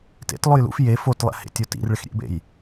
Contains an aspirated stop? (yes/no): no